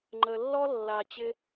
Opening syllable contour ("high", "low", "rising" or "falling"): low